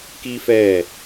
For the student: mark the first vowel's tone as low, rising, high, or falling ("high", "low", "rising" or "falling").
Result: high